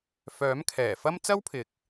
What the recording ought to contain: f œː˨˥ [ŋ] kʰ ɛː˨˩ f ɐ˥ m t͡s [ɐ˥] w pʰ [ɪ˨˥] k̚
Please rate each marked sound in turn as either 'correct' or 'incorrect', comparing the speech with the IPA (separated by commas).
incorrect, correct, incorrect